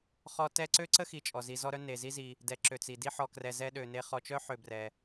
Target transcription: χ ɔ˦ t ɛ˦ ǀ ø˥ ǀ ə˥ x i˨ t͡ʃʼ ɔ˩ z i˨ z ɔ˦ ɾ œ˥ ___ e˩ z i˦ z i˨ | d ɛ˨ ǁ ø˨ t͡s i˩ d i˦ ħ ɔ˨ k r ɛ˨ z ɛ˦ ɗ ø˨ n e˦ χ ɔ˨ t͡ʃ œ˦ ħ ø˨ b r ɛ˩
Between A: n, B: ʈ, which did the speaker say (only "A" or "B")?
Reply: A